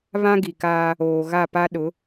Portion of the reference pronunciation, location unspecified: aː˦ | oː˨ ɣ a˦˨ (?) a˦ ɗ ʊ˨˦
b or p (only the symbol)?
p